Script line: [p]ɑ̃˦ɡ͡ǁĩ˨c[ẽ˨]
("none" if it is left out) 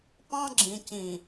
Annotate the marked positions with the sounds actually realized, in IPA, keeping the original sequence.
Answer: p, ĩ˨

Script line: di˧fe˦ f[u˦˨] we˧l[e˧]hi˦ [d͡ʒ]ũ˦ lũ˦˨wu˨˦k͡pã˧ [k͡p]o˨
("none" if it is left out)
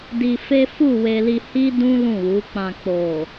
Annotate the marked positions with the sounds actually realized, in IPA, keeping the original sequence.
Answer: u˦˨, i˧, d, k͡p

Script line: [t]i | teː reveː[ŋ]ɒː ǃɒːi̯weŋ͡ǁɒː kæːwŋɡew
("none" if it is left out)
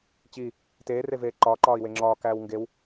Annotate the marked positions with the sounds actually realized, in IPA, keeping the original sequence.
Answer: t͡ɕ, ǃ

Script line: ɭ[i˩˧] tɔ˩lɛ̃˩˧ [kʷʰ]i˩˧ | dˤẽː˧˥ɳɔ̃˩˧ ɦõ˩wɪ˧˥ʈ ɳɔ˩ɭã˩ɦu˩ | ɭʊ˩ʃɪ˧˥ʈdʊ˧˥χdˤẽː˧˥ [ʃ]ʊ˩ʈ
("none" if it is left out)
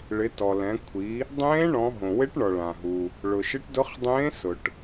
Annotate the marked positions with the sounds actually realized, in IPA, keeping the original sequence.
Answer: ɪ˩˧, kʷʰ, s

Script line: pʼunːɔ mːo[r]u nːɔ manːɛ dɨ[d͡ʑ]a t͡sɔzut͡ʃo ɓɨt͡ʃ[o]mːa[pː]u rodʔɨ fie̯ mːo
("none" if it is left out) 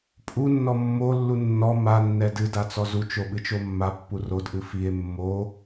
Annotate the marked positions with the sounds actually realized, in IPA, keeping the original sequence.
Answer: lː, d, o, pː

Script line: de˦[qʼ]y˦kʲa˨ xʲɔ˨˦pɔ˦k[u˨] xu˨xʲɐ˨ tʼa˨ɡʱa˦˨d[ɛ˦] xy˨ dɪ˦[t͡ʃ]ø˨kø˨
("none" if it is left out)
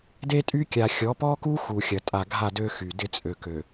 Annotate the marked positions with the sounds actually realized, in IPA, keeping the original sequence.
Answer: tʼ, u˦, ø˦, t͡sʼ

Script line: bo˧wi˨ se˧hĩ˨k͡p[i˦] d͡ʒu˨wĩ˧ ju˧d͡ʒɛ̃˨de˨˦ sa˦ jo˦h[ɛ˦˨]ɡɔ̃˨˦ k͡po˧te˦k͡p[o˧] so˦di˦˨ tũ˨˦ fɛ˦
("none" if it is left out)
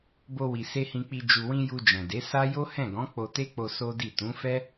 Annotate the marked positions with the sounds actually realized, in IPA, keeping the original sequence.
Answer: i˨, ɛ̃˦˨, o˧

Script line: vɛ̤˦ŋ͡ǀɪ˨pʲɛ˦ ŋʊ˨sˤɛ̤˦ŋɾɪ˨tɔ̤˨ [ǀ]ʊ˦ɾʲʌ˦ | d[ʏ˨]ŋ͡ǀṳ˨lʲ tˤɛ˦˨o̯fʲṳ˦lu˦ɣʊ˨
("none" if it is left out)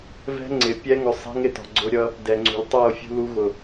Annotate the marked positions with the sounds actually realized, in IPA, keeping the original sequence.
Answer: ɡ͡ǀ, ɛ˨

